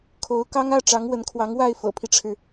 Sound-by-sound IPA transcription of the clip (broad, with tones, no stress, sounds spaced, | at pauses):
kʰ o˧˥ ʊ̯ k ɑ˥ ŋ ä˥˩ ʈ͡ʂ ɑ˧˥ ŋ w ə˧˥ n kʰ w ɑ˧˥ ŋ w a˥˩ ɪ̯ f ɤ̰˨˩ pʰ i˦ ʈ͡ʂʰ ɻ̩˩